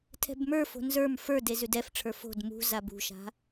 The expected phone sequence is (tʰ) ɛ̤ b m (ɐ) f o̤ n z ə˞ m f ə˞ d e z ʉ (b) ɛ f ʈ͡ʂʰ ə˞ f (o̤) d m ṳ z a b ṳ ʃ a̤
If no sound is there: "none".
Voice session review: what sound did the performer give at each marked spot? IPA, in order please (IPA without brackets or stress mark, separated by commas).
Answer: tʰ, ə˞, d, o̤